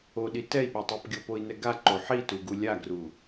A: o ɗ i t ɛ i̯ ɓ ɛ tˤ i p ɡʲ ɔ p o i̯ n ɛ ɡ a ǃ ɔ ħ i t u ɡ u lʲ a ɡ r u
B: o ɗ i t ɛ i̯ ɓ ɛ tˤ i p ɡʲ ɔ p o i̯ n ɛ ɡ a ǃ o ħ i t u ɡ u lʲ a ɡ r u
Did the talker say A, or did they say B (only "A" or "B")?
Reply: B